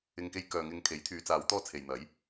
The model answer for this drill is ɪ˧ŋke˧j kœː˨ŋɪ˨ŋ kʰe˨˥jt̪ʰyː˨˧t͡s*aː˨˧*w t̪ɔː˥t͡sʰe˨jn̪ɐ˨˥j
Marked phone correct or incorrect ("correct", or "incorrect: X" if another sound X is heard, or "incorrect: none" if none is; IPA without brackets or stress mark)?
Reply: correct